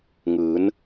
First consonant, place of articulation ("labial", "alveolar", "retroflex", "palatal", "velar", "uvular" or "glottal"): velar